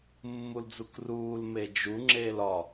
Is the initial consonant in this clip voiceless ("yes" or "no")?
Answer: no